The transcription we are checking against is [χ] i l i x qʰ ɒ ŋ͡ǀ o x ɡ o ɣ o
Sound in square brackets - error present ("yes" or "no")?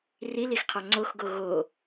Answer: yes